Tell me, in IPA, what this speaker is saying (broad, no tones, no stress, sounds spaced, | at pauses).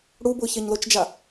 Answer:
ɽ u b ʊ ç ɛ ɲ l o t͡ʃ d͡ʒ a